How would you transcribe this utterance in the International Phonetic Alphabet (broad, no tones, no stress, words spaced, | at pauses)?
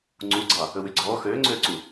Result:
ŋ͡ǀuɡ͡ǀɑ | ɵwyɡ͡ǀɔː xøːŋ͡ǀøːǀu